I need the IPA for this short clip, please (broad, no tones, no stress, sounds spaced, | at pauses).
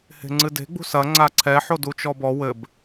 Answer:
h e̤ ŋ͡ǀ ɨ d e̤ ɡ͡b ṳ s ɐ ŋ͡ǀ a ǀʰ ɛ ħ o d u t͡ʃ ɔ b ɔ w ɘ b